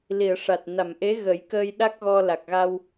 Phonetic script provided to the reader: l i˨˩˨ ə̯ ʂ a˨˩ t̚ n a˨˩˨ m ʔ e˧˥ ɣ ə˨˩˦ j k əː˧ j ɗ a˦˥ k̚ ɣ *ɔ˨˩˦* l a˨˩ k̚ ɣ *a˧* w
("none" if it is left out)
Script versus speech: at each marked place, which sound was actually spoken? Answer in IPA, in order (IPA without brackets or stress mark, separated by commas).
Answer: ɔ˧, a˧